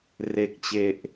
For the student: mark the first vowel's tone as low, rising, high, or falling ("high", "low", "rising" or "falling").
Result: low